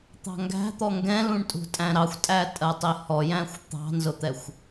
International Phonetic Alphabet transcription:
t̪ɑ̤ŋɡæ̤t̪ɔ ŋɡɛ̃lũɳtʼṳtʼæ̃ ɾɑxʷtʼæ tʼɜtˤihɔjæ̃xʷ t̪ɑ̤nzʊt̪ɛxʷ

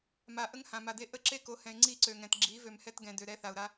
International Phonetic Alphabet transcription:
ma˨ ʔə˦ŋhã˨ma˨de˦ ʔə˦ǁe˦ko˨˦hɛ̃˨ɪ̯ ŋ͡ǀi˦˨ǀø˨ŋɛ̃˨t ɡ͡ǁi˨˦ vø˨mhɛ˦tɡɛ̃˨dø˨ ɾɛ˦θa˨ʊ̯ɾa˦

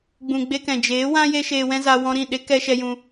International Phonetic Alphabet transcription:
ɡ͡bũ˨ɡ͡be˧kɛ̃˨ d͡ʒeː˨˦wã˦ je˦ʃeː˧wɛ̃˦za˧ wɔ̃˧ɾĩ˦˨ ɗe˧ kɛ˦ʃɛ˦jũ˦

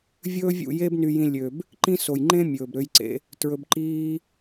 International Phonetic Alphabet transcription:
vʲɵː˦vʲṵ˦˨je˦b ny˧jĩ˧ lʲø˨b | ǃĩ˦so˨j ŋ͡ǃẽ˦ mʲɵː˨bɾø˧jǀḛ˧ | tɹɵ˧bǃiː˦

